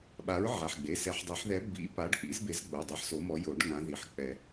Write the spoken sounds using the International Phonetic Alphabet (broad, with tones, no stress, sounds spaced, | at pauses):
ɓ a˨˥ ɹ ʕ a˩˧˩ ħ ɡ͡b e˩˧˩ s ɛ˨˩˦ ħ dˤ e˨˩˦ ħ ð ɛ˨˥ b ḭ˨˥ p a˨˥ ɖ k͡p ḭ˨˥ z b e˨˥ z ɡ͡b o˩˧˩ dˤ ɛ˨˥ ħ s o˨˥ m ɔ˨˥ j o˨˩˦ ɖ ŋ ã˨˥ ð i˩˧˩ ħ k͡p ɛ˨˩˦